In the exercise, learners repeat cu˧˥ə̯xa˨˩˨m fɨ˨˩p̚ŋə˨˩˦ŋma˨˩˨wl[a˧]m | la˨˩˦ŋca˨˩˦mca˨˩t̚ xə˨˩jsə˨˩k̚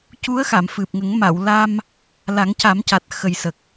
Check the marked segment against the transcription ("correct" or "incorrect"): correct